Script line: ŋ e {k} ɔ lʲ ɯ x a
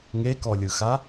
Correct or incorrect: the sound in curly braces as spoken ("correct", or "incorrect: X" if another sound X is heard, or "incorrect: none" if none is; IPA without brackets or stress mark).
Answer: correct